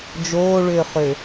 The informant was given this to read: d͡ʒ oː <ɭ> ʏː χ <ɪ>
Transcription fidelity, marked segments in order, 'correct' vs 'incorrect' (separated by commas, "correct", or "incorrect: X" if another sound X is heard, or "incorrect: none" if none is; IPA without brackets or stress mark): correct, incorrect: ʏ